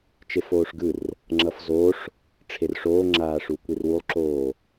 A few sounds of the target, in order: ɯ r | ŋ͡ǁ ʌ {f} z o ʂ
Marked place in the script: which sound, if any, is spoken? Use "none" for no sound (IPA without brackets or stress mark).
f